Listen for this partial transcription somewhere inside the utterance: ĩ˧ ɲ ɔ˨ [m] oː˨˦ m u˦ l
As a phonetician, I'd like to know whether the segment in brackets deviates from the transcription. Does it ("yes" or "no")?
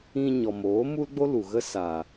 no